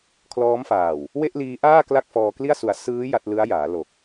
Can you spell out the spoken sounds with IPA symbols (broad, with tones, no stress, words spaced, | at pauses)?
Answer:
kʰlɔː˦˥mfaː˨˩w | we˥˩ʔliː˦˥ʔaː˥˩ kla˥˩k̚fɔː˧kli˥˩a̯ su˩˦a̯ sɯː˦˥ ja˥˩t̚ lɯ˦˥a̯jaː˩˦ lo˨˩k̚